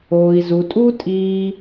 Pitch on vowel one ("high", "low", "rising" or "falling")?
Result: low